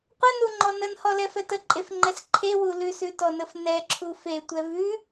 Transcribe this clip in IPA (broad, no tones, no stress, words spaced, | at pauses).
qʷənuŋ͡ǃɔ nənhɔlɛfɛ təǃʼefŋ͡ǃɛs ǃʰewu lʉsʉtɔnəf nɛǁʰu fetʷɛ vʉ